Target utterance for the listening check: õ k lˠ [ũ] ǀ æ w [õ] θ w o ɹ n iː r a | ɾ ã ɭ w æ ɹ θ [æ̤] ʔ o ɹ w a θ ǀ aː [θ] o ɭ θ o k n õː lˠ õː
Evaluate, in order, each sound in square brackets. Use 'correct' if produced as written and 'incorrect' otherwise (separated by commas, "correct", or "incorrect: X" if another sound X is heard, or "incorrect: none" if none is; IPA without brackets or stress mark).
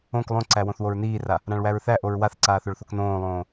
incorrect: õ, correct, incorrect: æ, correct